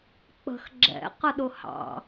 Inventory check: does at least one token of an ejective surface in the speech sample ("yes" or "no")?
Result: no